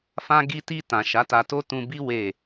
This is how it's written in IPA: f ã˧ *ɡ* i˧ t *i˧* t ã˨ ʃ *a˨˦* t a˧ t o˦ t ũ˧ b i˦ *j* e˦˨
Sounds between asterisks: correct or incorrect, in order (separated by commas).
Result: correct, correct, correct, incorrect